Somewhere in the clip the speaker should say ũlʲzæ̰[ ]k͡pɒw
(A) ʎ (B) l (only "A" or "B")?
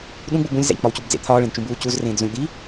A